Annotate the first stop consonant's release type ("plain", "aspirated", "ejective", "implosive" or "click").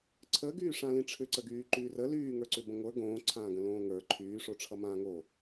click